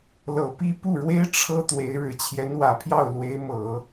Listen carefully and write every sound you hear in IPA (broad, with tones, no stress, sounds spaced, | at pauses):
l ɤ˨˩ p i˥˧ p u˥˩ ɻ w e˥ ɪ̯ ʈ͡ʂʰ ɤ˥ t̪ w e˧˥ ɪ̯ ɻ ɻ̩˨˩ t͡ɕʰ j ɛ˧˥ n w ä˨˩ pʰ j ɑ˥˩ ʊ̯ l w e˧˥ ɪ̯ m ɤ˨˩˦